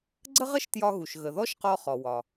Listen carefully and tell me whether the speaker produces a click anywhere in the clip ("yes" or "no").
yes